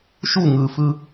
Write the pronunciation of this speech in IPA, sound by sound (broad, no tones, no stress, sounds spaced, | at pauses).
ʃ u ŋ ɯ f ɯ